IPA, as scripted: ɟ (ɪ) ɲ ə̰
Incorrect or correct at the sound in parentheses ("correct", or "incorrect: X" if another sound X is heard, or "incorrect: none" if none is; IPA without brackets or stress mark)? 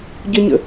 incorrect: ə